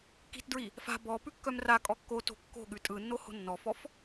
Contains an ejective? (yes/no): yes